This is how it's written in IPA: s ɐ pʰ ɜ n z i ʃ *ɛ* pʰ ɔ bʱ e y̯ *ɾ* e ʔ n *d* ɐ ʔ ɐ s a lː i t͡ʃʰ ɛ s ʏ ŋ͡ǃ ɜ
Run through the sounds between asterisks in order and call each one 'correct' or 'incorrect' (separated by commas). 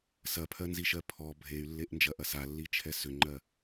incorrect, incorrect, incorrect